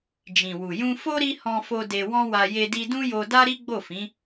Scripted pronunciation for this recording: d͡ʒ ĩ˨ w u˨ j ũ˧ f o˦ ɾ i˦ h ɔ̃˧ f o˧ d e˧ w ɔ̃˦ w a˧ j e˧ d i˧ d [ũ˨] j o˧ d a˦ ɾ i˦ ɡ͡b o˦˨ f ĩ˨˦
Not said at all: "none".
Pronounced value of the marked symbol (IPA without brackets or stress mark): ũ˦